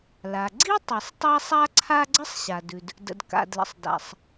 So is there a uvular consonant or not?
no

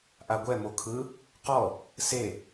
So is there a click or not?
no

